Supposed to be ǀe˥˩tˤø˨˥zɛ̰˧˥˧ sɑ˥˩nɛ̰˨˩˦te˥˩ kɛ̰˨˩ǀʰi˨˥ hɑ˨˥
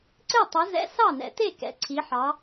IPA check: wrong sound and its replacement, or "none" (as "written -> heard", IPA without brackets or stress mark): h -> ħ